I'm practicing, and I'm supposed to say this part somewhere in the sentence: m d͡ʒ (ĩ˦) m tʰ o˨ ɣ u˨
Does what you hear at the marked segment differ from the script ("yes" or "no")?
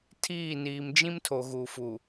no